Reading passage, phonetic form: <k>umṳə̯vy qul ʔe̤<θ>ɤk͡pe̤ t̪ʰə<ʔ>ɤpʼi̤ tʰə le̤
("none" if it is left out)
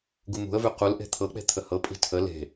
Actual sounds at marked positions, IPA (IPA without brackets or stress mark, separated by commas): ɡ, t̪ʰ, h